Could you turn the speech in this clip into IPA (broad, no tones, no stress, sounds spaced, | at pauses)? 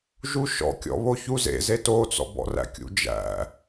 ʒ u ʃ ɔ̰ kʲ ɔ̰ β o ç u z ḛ z e t o t͡s ɔ̰ b ɔ̰ r æ̰ kʲ ṵ d͡ʒ æ̰